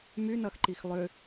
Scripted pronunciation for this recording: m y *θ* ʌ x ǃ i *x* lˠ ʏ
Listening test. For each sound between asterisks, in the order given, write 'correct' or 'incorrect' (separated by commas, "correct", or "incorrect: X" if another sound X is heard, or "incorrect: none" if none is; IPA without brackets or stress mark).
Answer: incorrect: n, correct